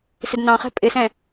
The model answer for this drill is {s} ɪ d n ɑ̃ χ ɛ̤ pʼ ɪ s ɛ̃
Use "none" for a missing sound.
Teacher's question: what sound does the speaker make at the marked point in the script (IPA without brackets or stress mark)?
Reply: s